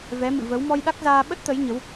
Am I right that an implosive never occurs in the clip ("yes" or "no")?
no